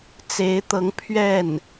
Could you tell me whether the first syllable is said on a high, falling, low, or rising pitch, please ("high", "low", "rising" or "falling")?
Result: rising